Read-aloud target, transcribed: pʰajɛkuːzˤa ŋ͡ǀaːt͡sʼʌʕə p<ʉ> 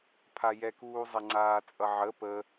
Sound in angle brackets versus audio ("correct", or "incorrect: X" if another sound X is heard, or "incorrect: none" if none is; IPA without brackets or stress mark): incorrect: ə